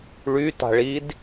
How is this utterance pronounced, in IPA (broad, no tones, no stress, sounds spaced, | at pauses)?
ɭ y t a̤ ɭ i d